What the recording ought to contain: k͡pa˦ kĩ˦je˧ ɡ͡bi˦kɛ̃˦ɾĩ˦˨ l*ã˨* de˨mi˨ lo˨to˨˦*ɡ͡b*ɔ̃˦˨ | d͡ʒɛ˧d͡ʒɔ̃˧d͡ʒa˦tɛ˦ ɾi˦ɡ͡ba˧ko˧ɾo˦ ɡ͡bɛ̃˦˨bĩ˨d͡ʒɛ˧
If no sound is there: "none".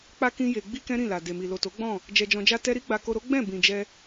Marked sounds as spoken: a˨, ɡ͡b

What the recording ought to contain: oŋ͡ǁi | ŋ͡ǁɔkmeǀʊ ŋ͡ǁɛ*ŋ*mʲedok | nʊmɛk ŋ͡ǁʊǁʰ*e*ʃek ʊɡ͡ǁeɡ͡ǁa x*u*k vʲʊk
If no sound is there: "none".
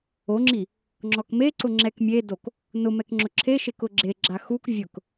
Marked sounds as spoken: k, e, u

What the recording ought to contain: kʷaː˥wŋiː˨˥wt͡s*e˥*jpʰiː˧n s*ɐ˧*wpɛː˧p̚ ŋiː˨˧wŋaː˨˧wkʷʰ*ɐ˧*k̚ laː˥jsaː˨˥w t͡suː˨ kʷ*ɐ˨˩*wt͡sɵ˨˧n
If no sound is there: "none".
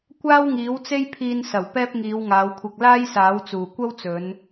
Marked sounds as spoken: e˥, ɐ˨˩, ɐ˧, ɐ˥

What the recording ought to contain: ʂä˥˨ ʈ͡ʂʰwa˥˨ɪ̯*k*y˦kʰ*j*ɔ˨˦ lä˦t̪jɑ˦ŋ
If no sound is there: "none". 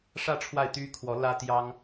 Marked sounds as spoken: t̪, w

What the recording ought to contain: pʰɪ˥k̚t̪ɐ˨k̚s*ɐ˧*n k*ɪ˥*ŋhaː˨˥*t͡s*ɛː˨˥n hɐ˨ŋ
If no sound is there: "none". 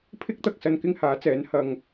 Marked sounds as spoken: ɐ˧, ɪ˥, t͡s

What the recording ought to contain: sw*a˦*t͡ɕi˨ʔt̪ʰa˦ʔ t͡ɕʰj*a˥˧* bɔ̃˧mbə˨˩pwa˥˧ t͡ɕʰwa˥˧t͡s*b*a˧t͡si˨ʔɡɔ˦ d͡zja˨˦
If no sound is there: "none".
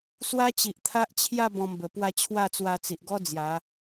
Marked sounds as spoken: a˦, a˥˧, w

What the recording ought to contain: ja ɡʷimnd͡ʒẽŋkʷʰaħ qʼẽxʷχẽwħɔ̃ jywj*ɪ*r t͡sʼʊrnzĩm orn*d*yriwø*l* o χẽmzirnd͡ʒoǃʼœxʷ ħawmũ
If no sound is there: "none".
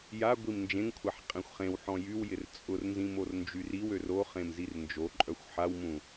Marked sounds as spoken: ɪ, d͡ʒ, r

